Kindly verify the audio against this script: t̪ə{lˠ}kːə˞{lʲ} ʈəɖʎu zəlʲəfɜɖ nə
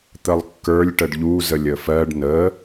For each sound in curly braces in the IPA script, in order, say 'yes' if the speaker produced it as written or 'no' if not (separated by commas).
yes, yes